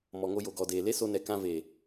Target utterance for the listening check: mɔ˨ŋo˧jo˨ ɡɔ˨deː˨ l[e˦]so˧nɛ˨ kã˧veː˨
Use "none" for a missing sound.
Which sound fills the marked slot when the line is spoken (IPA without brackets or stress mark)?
e˦